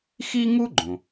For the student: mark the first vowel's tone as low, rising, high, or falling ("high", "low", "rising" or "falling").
high